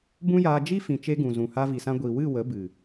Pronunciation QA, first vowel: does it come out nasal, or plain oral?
nasal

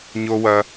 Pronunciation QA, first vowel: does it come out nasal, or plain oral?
oral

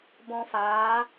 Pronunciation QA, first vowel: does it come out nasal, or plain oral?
nasal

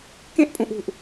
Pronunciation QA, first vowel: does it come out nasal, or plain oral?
nasal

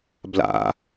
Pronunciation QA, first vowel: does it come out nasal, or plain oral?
oral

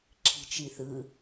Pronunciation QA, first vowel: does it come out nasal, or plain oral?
oral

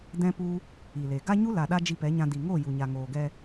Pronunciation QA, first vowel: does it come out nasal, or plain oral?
nasal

